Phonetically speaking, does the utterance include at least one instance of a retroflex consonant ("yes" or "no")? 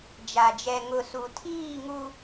no